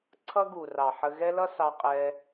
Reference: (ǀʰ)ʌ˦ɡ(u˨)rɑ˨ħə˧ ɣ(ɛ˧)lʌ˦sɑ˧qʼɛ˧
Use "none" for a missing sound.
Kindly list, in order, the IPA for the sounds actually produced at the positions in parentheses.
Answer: ǀʰ, u˨, ɛ˦

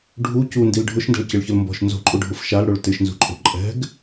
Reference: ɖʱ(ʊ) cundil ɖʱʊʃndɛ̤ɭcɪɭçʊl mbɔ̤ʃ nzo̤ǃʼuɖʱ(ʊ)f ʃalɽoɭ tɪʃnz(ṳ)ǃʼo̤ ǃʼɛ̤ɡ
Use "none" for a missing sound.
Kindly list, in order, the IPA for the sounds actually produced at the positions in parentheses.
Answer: u, ʊ, ṳ

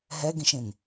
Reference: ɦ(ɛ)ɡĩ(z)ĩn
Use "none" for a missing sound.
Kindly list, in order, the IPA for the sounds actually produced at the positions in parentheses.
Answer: ɛ, ʃ

